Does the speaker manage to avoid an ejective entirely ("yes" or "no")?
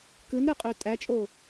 no